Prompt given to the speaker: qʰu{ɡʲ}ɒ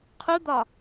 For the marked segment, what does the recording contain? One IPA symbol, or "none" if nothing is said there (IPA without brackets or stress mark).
d̪